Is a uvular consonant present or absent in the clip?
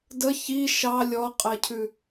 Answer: present